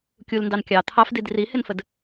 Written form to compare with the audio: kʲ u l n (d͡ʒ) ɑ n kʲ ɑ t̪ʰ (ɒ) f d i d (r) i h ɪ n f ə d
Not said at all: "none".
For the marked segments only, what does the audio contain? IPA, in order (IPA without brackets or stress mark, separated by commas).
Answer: d, ɑ, r